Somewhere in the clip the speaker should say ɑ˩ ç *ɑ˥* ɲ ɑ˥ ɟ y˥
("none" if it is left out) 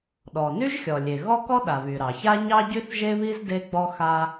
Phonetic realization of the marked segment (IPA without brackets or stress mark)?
a˥